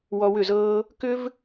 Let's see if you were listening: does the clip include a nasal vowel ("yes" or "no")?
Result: no